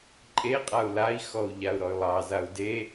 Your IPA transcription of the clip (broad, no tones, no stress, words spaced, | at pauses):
ǃʼeqʼau̯ lai̯xɔu̯ ʎau̯ɾɔy̯lˠɑzau̯ de